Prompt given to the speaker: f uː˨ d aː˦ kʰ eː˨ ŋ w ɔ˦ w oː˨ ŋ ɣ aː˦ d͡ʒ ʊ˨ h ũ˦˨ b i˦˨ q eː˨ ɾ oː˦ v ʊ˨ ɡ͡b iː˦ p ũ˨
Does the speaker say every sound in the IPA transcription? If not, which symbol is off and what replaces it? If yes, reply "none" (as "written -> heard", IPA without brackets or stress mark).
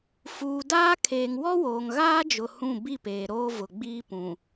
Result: q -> p